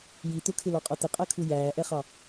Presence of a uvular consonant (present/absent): present